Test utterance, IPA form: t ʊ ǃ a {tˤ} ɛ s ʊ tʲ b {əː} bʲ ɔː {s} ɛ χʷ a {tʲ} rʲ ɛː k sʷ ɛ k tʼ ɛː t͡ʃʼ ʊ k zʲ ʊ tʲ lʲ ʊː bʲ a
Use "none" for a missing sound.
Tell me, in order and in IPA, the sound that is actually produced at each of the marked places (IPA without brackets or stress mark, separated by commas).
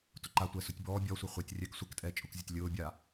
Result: tʷ, ɔː, sʷ, tʲ